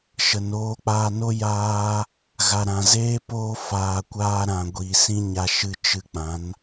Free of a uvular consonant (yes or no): yes